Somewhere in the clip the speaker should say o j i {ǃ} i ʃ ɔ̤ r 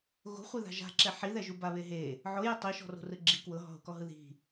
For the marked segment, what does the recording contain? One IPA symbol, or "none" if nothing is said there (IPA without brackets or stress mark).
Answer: tˤ